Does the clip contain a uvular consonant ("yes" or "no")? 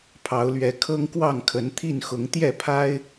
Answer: no